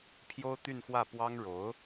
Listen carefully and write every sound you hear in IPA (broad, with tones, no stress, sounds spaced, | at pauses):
pʰ j o˥ ʊ̯ t̪ y˥˧ n x w ä˥˩ p w ɑ˥ ŋ ɻ o˧˥ ʊ̯